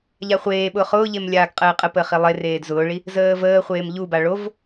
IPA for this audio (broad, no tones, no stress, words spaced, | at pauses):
ʎaχʷeːɓʊːχ ʊːʎem lʲaːɡqʼəːqʼəpəːχ ilˠereːd zʊːɭi | zəːvəːχʷeːm ʎuba ɭov